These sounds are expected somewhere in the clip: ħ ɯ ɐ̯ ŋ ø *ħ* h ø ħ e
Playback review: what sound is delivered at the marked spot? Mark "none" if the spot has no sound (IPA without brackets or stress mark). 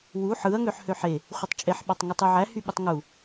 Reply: ħ